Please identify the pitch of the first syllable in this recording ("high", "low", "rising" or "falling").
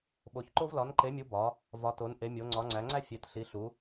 rising